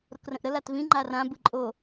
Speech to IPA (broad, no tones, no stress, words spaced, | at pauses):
ɾokrə̃ʔɾə latvĩ ŋ͡ǃarã bɯǃʼo